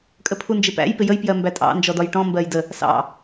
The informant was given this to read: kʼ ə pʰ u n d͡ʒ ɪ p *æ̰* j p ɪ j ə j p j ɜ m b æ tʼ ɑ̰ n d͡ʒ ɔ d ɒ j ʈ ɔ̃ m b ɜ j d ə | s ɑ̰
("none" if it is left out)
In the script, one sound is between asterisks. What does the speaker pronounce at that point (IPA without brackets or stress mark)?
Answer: æ̰